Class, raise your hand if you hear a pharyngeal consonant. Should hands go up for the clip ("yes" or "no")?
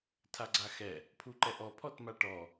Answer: no